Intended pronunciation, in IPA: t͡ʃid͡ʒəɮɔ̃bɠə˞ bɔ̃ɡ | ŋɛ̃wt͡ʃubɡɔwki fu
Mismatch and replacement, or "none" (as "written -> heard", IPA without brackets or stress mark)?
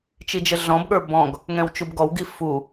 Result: k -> ɡ